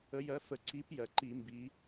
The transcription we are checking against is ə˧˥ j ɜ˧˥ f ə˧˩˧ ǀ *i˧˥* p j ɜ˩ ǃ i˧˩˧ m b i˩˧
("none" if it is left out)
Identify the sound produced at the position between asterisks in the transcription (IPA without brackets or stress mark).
i˧˥